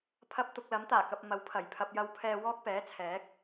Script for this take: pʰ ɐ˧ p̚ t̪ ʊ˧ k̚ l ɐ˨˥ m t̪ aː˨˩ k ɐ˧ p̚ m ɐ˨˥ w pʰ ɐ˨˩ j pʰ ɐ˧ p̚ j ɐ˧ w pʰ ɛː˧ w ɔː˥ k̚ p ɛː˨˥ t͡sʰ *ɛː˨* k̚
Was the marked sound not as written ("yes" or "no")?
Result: yes